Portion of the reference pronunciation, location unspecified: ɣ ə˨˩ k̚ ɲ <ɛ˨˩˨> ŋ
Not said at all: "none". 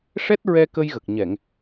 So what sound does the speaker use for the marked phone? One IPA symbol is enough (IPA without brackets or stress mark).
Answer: ɛ˨˩˨